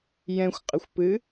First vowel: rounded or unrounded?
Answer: unrounded